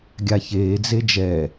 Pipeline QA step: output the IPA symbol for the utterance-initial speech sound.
ɡʲ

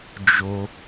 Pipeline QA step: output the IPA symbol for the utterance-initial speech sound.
d͡ʒ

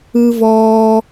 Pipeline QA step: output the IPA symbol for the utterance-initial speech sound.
ɯ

